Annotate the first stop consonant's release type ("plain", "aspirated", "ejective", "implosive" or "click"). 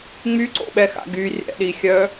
click